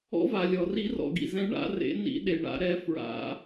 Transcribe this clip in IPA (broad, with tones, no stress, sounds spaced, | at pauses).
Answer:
ɔ̰˨˥ v a˩ lʲ ɔ˩ r i˨˥ r ɔ̰˩ ɡ ḭ˩ z ɛ̃˨˥ ɳ a̰˨˥ r ḛ˨˥ n ḭ˨˥ ɗ e˩ ɳ a̰˨˥ ɾ ɛ˨˥ f ɹ a̰˨˥